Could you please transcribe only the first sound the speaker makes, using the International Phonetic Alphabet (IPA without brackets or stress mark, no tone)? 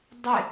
dˤ